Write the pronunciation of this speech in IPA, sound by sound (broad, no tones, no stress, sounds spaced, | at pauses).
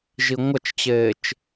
ʒ i ŋʷ ʌ t͡ʃ t͡ɕ eː t͡ʃ